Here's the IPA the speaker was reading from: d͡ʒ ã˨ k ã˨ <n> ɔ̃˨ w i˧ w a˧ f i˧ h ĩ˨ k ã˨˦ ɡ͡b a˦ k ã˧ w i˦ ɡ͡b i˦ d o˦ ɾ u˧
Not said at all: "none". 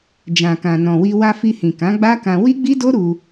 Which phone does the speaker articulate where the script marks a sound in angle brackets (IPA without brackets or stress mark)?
n